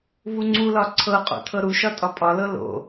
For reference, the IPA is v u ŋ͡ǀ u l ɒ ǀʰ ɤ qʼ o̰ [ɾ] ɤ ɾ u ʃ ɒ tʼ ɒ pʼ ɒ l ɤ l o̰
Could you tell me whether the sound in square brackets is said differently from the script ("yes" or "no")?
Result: yes